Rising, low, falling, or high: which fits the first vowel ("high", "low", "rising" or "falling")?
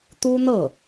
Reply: high